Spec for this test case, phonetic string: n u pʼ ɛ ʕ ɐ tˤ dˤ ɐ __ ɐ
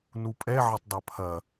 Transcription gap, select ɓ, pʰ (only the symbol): pʰ